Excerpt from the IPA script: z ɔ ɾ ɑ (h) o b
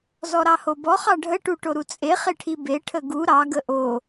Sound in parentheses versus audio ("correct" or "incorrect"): correct